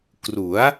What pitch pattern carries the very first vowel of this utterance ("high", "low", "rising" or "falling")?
rising